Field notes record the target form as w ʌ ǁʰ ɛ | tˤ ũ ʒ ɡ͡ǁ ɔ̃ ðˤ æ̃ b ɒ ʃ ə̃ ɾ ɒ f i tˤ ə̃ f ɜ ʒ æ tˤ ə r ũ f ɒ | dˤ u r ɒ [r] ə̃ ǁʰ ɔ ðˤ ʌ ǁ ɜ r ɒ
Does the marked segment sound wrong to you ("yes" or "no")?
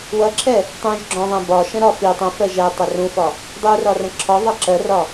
no